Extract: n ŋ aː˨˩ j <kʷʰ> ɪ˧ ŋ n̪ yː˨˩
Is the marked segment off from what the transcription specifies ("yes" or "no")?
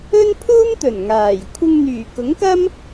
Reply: no